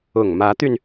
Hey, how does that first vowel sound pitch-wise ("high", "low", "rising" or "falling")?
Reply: low